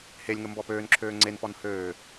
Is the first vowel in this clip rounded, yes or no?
no